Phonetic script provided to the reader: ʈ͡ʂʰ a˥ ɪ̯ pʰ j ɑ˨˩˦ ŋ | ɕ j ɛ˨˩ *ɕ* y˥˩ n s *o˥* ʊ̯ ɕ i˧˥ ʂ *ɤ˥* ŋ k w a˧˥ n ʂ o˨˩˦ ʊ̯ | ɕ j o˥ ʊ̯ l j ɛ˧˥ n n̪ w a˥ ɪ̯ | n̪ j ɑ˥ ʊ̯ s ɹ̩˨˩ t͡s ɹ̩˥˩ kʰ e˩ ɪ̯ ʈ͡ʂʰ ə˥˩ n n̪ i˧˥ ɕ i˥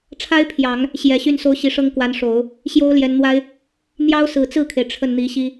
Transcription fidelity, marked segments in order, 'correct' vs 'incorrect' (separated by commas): correct, correct, correct